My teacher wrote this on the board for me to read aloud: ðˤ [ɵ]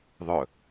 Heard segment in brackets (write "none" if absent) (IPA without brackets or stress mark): ɵ